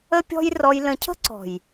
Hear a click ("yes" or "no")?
yes